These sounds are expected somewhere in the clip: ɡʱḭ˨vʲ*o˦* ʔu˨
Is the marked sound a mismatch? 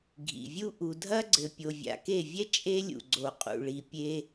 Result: yes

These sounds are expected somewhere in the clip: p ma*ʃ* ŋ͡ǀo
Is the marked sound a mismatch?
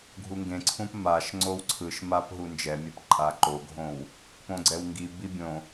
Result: no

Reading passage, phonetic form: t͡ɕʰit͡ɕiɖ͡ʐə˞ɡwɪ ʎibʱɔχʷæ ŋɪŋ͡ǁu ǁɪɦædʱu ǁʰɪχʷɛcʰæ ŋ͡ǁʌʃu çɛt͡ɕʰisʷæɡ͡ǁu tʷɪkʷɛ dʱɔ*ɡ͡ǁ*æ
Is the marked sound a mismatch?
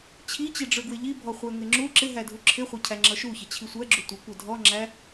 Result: yes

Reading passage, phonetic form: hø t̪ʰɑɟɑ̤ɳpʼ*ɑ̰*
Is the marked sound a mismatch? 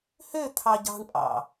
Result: no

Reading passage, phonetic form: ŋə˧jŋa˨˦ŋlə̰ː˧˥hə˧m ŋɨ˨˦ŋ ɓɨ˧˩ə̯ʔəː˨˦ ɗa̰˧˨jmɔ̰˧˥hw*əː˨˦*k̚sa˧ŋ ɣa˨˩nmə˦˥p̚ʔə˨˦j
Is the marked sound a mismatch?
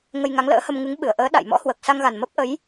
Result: yes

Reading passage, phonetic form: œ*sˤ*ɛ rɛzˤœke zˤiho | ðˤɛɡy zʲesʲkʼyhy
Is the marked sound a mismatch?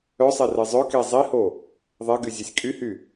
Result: no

